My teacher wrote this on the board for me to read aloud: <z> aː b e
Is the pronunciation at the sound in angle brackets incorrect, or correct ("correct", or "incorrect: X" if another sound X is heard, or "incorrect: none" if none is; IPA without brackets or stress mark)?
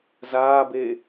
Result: correct